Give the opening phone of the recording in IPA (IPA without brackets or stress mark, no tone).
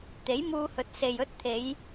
t̪